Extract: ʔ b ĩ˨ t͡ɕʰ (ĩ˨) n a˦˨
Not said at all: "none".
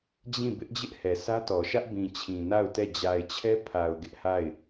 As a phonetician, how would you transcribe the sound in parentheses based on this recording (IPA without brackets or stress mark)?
ĩ˨